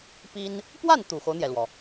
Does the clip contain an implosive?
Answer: no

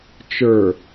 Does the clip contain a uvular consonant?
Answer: no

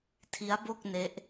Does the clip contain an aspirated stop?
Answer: yes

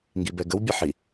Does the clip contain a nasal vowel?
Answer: no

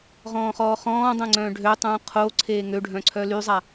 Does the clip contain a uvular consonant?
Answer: yes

